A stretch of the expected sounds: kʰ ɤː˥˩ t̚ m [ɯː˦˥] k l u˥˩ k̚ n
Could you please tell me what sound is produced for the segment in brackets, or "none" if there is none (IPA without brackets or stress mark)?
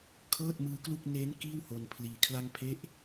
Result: ɯː˦˥